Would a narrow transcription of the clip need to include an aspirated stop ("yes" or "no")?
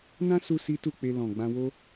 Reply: no